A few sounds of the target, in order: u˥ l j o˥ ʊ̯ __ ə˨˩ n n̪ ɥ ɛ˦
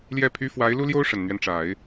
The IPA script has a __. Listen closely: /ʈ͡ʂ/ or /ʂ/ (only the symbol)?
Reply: ʂ